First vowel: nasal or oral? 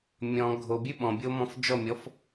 nasal